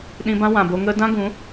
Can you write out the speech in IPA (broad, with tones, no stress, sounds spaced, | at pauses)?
ɗ ĩ˧ b ã˦ w ã˨ b o˧ ŋ ə˧ d ã˦ ɡ ũ˨˦